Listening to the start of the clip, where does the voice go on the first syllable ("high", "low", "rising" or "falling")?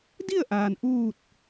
falling